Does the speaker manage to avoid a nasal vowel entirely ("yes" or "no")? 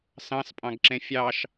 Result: no